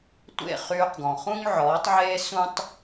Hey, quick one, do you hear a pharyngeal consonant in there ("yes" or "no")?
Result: yes